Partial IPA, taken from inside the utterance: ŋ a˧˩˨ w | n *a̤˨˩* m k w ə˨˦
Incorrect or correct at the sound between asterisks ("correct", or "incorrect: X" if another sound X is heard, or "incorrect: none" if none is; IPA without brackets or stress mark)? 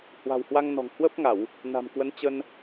correct